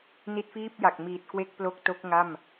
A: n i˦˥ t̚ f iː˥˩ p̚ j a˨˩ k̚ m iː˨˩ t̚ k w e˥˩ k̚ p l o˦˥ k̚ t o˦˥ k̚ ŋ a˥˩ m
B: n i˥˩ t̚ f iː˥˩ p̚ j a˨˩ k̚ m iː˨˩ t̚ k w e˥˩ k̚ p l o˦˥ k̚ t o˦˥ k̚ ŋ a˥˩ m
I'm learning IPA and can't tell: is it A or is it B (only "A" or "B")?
A